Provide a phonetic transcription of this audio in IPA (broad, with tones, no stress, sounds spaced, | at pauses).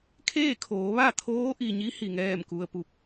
kʰ eː˥˨ kʰ oː˩˧ ʋ a˥˨ t̪ʰ oː˧˥ ʔ i˩ ɲ i˧˥ h i˩ ŋ ɛː˥˨ m k u˧ ə̯ p u˧ p̚